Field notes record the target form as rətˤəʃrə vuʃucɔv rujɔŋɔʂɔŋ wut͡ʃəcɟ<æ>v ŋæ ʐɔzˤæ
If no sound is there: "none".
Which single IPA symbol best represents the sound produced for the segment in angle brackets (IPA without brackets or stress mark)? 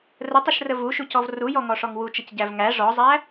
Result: æ